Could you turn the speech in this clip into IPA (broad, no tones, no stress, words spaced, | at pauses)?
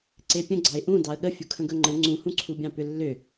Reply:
ǀepʲə̃ɡ͡ǀɑɪ̯ ʔũ dɑə̯ɠə fʲukʰə̃ɡɵŋ͡ǃə̃ ŋ͡ǀũhũǀʰubʲɑ̃ pʏlːʏ